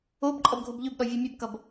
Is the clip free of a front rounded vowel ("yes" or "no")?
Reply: no